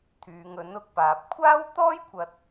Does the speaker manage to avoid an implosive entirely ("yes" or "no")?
yes